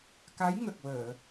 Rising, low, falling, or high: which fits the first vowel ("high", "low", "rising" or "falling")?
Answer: rising